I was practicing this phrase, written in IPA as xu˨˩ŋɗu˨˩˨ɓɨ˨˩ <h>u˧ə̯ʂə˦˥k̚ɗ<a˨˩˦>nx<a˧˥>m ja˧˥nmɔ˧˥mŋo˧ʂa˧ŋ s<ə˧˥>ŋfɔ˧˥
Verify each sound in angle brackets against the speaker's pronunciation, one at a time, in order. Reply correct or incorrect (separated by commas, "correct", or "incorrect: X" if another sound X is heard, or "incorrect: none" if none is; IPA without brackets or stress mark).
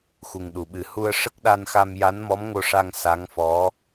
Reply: correct, incorrect: a˧, incorrect: a˧, incorrect: a˧˥